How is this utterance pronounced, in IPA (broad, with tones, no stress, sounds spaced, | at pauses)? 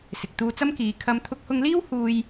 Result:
s ɪ˨ k̚ t̪ uː˧ t͡s ɐ˥ m k iː˨˧ kʰ ɐ˧ m t̪ʰ ʊ˧ k̚ h ʊ˧ ŋ l iː˥ w h uː˥ j